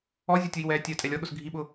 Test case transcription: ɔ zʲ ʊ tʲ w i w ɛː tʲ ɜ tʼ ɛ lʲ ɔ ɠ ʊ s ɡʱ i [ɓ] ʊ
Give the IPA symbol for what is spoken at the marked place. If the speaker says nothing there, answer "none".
ɓ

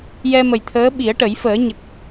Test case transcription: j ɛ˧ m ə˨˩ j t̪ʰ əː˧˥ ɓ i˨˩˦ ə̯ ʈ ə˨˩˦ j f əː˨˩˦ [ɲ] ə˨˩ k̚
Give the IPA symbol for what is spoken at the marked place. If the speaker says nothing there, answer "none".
ɲ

